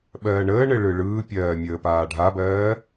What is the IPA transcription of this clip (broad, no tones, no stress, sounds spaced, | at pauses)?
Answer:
ɓ ɜː ɳ əː ɳ ɘ ɭ ɯ ɭ ɯː pʲ ɜː mʲ əː p aː ɖʱ a b ɜː